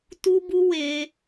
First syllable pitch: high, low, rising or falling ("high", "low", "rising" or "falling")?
high